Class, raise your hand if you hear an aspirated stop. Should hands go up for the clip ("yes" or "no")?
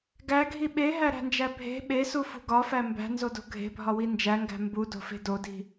no